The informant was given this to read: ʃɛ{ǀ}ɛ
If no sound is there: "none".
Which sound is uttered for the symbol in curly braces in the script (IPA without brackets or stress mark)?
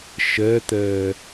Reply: t̪